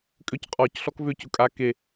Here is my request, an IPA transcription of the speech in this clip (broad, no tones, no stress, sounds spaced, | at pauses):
kʼ ʏ c qʼ ɔ c ɬ ɔ k v ʏ c ʊ kʼ a k e